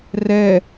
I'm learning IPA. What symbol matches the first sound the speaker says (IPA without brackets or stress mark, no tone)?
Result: r